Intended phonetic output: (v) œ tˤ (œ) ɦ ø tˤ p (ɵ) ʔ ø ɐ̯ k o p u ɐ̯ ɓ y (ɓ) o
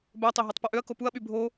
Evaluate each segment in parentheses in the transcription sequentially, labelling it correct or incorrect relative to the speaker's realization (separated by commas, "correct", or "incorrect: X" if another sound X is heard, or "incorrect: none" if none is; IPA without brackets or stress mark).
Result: incorrect: b, incorrect: ø, correct, incorrect: bʱ